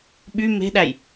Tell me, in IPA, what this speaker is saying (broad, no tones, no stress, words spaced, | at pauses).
ɓy me̤ɗæj